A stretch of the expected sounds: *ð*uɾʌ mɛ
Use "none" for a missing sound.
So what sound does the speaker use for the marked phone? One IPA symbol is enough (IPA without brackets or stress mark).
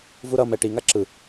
v